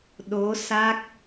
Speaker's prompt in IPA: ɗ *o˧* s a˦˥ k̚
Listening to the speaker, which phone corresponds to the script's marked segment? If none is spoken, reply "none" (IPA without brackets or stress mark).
o˧˥